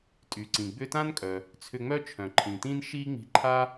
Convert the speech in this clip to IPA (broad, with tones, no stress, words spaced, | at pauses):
tʼy˩ǀĩ˩ɡ͡bʏ˥ tã˥nkʼœ˩ | t͡sʰʏ˧ŋ͡mœ˥t͡ʃʰœ̃˩ ǃʰĩ˩tĩ˥nʃi˥ ŋ͡mi̤˧ǃʰa˥